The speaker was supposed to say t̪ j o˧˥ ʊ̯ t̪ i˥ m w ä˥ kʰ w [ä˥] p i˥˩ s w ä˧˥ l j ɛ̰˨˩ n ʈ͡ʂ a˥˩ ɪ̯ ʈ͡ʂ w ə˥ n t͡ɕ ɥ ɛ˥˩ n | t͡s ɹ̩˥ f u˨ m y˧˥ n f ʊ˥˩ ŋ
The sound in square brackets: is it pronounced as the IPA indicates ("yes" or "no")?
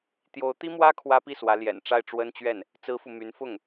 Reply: yes